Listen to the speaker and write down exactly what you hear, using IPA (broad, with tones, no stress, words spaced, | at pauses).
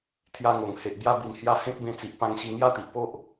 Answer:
t̪ʰja˧ŋo˨˩ŋ he˨ʔbja˧bi˨˩m hja˧ hẽ˦k̚bẽ˧t͡si˨ʔ pã˧ŋɕi˧ ŋja˦t̪i˨ʔpo˦ʔ